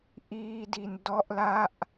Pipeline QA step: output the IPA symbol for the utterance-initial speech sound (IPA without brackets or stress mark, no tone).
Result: ʔ